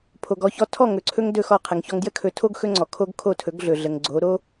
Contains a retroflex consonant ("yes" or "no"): no